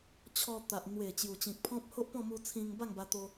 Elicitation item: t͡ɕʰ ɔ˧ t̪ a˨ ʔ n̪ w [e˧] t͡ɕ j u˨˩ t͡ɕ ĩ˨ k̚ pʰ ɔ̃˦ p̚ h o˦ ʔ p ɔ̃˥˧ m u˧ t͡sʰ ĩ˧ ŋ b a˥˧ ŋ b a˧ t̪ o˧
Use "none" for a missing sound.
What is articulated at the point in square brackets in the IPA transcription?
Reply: e˨˩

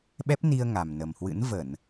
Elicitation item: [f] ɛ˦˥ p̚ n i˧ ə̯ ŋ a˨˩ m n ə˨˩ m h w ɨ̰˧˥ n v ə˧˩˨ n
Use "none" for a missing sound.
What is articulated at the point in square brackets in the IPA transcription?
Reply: ɓ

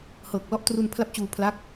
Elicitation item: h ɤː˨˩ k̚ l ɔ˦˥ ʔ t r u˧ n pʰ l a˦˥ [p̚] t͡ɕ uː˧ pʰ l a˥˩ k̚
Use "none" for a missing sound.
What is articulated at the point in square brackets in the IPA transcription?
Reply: p̚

